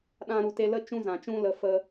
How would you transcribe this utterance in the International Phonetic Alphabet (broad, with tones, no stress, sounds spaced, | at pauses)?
ɗ ã˧ ɾ u˨ t e˧ l ə˦ t͡ʃ ũ˦ z ã˨ t͡ʃ ũ˦ l ə˧ f ə˧